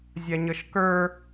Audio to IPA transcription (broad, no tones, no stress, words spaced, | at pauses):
zʲaɲʌʃkə˞